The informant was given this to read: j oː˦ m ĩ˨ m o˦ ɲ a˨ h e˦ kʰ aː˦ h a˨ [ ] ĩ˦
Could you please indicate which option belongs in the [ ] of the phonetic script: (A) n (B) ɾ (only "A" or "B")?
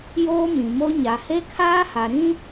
B